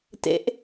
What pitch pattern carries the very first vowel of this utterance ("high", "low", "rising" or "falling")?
rising